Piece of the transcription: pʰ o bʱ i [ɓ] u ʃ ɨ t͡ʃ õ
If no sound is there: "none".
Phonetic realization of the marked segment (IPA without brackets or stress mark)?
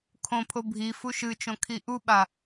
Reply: f